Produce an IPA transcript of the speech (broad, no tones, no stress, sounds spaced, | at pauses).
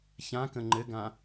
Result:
ç ã k ə̃ ŋ͡ǃ ɘ ɡ ã